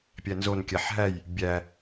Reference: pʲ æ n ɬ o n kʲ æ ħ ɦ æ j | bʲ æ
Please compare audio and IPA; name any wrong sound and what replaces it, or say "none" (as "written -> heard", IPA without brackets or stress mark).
ɬ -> z